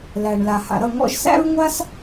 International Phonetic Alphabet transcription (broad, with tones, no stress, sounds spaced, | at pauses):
l æ˩ ɳ l a˩ h a̰˩ ɾ ʌ˥˩ ŋ ɔ̰˧ ʒ s æ̰˥ ɹ ŋʷ a˥ s